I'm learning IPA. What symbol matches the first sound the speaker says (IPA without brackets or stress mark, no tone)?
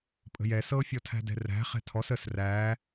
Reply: pʼ